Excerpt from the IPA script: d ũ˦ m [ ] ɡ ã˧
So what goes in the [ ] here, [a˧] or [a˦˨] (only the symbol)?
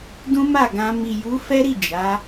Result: a˦˨